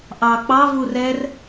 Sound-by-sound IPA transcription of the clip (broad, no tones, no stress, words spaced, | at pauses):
ʔɑk͡pɑv urɛr